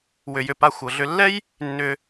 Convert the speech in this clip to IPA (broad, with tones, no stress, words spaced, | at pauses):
wʏ˩jʏ˩pa˨ xʷɤ˩ɮʏ˨lːɛ˥j | nːʏ˨